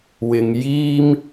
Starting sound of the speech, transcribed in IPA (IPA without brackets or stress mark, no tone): w